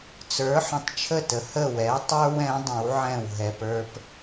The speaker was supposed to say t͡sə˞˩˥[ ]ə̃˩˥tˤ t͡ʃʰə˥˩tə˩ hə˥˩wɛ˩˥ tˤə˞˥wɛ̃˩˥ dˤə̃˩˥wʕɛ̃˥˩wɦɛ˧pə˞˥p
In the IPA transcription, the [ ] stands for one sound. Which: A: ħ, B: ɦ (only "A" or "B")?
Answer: A